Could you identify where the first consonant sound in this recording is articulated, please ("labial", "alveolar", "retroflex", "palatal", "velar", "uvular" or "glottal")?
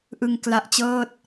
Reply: glottal